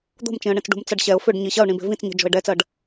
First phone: d̪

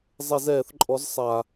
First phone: zˤ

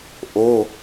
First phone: ʔ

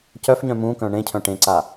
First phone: c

